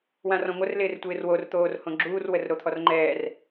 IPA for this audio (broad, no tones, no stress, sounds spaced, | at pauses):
w ã r ɔ̃ ŋʷ ə r l ɪː r tʷ ɪː r w o r t̪ oː r h õ ɡ͡ǁ uː r w ə r ɾ o t̪ʰ ɔ r ŋ͡ǃ ɛː r